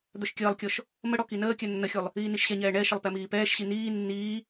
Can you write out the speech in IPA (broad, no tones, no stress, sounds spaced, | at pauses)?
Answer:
d̪ œ ʃ kʲ əː lˠ kʲ ɔ ʃ | m ə ɽ ɔ k i n əː kʲ œ nː ə xʲ u lˠ | iː n i ʃ ɕ ɛ ɲ ɛː ɳ ɛ ʃ ə lˠ p ɛ m iː p ɛː ʃ ɕ i n iː nː iː